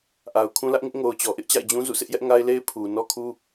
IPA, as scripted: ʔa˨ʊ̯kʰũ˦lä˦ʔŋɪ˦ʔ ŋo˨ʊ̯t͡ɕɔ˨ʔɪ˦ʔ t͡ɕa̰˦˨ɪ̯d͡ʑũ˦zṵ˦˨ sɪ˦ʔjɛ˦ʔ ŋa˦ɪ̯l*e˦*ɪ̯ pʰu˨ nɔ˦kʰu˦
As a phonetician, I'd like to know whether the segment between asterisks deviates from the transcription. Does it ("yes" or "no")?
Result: no